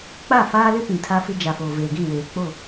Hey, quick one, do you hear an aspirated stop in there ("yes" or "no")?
yes